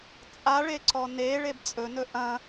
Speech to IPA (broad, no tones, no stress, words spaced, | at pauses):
t͡sʼaɭeǀɔ ne ɭebt͡sʼɵnɵ ʔɐ̃